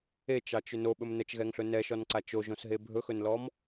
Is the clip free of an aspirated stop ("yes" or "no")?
yes